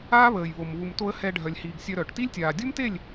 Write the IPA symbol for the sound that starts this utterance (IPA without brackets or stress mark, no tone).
aː